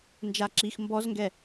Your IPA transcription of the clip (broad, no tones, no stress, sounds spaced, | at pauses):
n d͡ʒ a ǁ i x m b ɔ z ŋ ɡ ɛ